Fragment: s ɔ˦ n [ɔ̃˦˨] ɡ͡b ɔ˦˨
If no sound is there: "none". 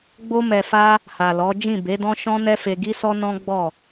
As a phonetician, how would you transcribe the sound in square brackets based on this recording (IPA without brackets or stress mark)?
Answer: ɔ̃˦